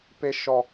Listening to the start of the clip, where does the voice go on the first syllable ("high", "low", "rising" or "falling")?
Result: low